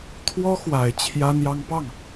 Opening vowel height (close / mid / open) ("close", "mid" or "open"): mid